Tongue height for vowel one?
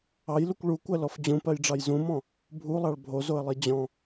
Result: low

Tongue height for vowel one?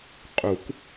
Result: high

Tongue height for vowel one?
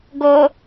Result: mid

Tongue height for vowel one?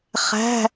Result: low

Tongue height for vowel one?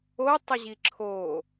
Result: mid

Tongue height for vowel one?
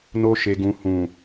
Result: mid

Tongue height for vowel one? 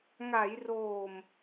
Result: low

